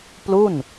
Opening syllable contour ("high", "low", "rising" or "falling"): falling